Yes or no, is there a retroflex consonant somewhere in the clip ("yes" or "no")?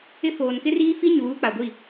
no